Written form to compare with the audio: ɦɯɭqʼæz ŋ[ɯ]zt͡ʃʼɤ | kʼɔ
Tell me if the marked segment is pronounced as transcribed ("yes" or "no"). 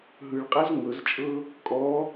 no